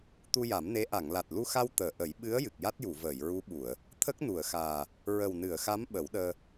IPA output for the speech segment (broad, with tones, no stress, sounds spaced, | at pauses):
t̪ u˧ j a˨˩˦ m n e˧˥ ʔ a˨˩˨ ŋ l a˨˩ t̚ l u˧ x a˧ w t̪ əː˨˩˨ ʔ ə˨˩˦ j ɓ ɨ˧˥ ə̯ j ɨ˨˩ k̚ j a˦˥ t̚ j u˨˩˨ v əː˨˩˨ j ɹ u˧˥ ɓ u˨˩˨ ə̯ | t̪ʰ ə˦˥ k̚ n u˨˩˨ ə̯ x aː˨˩ | ɹ ə˨˩ w n ɨ˨˩˨ ə̯ x a˧˥ m ɓ ə˨˩˦ w ɗ əː˧